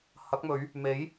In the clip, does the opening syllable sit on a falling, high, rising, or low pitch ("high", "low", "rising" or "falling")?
rising